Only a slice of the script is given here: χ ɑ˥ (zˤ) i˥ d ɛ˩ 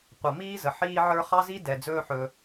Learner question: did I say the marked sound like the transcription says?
no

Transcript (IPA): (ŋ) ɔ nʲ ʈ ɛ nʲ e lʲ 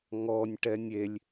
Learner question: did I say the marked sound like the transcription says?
yes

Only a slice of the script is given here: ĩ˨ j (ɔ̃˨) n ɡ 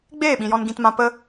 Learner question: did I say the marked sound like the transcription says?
no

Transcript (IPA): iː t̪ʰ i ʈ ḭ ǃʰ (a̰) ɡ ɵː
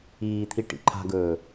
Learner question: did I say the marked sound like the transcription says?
no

